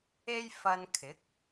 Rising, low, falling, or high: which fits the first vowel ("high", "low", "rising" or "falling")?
high